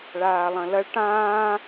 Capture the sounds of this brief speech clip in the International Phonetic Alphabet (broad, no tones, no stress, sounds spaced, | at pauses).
ɭ aː lˠ ɐ̃ l ɐ ɭ ʈ ãː